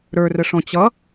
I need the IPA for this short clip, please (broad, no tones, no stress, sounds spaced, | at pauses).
ɾ ə˞ r ə ʂ ɔ̃ t͡ɕ ʌ